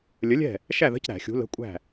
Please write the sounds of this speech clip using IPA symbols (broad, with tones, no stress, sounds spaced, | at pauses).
lʲ ə˨˥ lʲ ɛ̤˥˨ | ʃ æ˥˨ ð ə̤˧˥˧ c ɾ æ̤˧˩˧ xʲ ṳ˨˥ l ə̤˧˥˧ kʷʼ æ̤˥˨